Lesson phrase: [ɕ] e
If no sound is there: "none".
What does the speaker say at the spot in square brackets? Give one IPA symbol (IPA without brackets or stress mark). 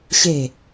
ɕ